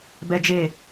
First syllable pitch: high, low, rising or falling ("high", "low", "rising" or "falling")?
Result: high